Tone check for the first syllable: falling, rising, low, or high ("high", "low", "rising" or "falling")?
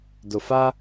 low